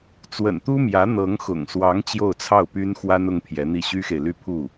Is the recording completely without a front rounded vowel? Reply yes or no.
no